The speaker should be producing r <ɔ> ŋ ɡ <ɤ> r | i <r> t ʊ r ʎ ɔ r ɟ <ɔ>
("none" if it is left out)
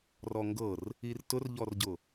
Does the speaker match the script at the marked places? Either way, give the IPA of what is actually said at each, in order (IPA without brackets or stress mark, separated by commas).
ɔ, ɤ, r, ʊ